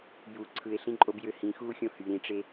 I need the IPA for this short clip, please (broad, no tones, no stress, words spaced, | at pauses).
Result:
ju ǀʰɯe̯ɬĩǃʼob jøhĩxuː xʲõhy ɾĩʈ͡ʂe